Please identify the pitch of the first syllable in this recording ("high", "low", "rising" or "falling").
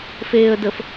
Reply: low